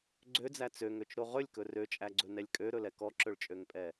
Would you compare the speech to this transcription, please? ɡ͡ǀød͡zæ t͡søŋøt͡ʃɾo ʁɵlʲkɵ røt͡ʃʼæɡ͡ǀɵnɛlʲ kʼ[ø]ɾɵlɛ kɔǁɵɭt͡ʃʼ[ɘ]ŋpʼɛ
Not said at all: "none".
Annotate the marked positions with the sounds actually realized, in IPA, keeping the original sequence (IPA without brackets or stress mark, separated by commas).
ø, ø